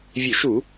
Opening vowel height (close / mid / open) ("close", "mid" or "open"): mid